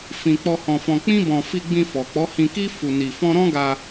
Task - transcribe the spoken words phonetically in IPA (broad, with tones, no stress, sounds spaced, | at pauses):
f ĩ˧ k͡p ɔ˧ h ɔ̃˧ f ɔ̃˧ k͡p ĩ˦ b ɔ̃˧ f i˧ ɡ͡b ĩ˧ f ɔ˨ k͡p ɔ˨˦ h ĩ˧ k i˦ f u˧ n i˧ f ɔ̃˦ ɾ ɔ̃˦ ɡ a˧